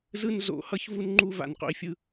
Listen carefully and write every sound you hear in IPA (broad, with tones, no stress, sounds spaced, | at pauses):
z ɯ˦ n z o̰˨˦ h ʌ˦ ç v u˦ n ŋ͡ǃ u˦ v a̰˨ n q o̰˦ i̯ fʲ ɯ˦